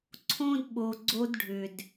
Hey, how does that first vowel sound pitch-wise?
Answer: high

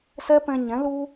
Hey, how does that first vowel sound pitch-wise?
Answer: high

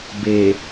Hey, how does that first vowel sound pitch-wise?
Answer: low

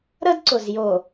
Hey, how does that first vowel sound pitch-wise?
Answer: high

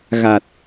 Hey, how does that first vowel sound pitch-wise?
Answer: low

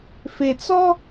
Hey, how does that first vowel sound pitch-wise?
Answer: low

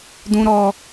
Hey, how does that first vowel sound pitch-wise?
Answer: high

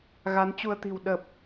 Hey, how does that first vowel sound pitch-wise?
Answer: rising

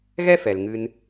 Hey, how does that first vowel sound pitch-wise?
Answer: high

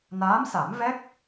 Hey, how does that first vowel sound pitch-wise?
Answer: rising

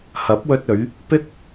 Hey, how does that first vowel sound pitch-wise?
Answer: rising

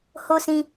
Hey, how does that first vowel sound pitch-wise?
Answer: high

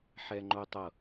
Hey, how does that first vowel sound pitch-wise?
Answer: high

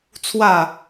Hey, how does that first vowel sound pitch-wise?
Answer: falling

